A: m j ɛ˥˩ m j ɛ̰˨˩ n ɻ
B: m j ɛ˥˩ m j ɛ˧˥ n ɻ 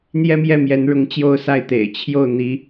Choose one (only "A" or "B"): B